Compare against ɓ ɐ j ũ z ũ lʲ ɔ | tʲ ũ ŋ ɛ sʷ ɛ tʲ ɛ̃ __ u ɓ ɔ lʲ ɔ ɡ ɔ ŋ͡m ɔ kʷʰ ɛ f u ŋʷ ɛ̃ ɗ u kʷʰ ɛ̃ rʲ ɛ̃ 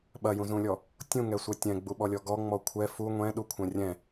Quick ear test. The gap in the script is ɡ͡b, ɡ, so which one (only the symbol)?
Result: ɡ͡b